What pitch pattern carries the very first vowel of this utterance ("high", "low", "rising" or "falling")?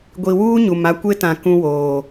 low